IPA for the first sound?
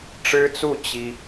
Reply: ʈ͡ʂ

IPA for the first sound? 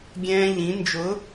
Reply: ɡʲ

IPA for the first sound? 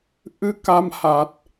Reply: ʔ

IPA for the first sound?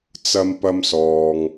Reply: t͡s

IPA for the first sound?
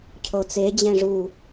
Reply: cʰ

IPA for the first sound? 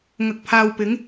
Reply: ŋ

